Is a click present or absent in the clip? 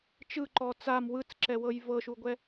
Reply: present